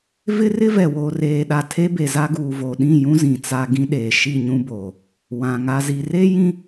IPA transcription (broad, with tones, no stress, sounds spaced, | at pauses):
v ɪ˦ r ɪ˦ v ɛ˨ w oː˨ r eː˨ ɗ a˨ tʰ e˦ b e˨ z a˦ ɡ uː˨ v o˨ ɗ ĩ˦˨ j ũ˦ z ĩ˨ t͡s a˦ ɡ ĩ˦ ɗ eː˨ ʃ i˦˨ ɲ ũ˦ b oː˨ | w ã˨ ŋ a˦ z i˦ r e˦ j ĩ˦